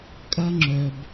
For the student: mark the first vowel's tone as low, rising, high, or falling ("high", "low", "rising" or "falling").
high